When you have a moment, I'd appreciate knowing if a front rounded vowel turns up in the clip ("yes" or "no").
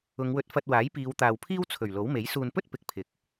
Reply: no